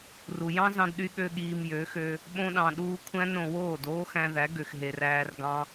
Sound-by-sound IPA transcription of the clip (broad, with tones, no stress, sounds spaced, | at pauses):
r u˨ j ɑ̃˦ z ɑ̃˧ d ɗ y˧ ɠ ø˦ ɠ iː˧ m j ø˨˦ x ø˧ | ɓ õ˧ ɗ ɑ̃˨ ɗ uː˧ kʷʰ æ̃˦ n ɾ õ˨ w oː˦˨ d oː˦ x æ̃˧ ð æ˨˦ ɡ ø˨ x ɦ e˨ r æː˧ r ɡ ɑ̃˦